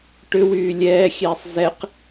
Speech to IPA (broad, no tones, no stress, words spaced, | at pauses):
ʈʏwyː lʲɛːxʲɛːsˤ zɛq